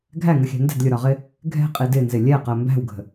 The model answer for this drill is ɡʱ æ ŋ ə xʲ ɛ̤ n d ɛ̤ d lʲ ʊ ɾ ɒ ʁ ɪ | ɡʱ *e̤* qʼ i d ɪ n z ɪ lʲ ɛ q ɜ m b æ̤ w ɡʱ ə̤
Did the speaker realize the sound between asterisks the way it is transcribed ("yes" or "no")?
no